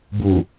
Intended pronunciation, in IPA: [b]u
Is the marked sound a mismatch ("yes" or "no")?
no